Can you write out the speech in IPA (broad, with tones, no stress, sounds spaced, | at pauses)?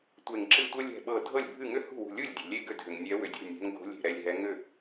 tʷ e˧˩ ŋ ǁ ɨ˥˩ tʷ ɤ˥ lʲ ɛ̤˧˩ ɓ ɤ˧˩ dʱ ɤ˥˩ lʲ bʱ ɨ˥˩ ŋ ʏ˥ h ṳ˥˩ w ṳ˧˩ lʲ u˥˩ lʲ dʲ o̤˩ lʲ e˥˩ ɡ ʏ˥˩ dʱ ʏ˩ ŋ nʲ ɛ˨˦ w ʏ˩ dʲ o̤˥˩ nʲ ɛ̤˨˦ ŋ ɡ o̤˨˦ lʲ e̤˧˩ ɾ ɛ˧˩ lʲ ɦ ɛ˨˦ ŋ ʏ˥˩